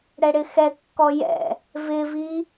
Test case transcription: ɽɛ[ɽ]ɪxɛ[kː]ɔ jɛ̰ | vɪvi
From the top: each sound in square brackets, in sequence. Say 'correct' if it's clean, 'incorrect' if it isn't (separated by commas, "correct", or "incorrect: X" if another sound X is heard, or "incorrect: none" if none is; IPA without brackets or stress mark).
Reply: correct, correct